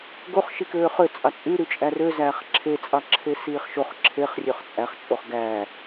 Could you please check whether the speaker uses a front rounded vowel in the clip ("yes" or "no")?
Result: yes